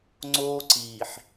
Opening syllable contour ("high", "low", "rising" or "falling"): high